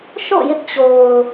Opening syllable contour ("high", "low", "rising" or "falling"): falling